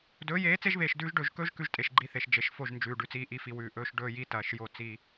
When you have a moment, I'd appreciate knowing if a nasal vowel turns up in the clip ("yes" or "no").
no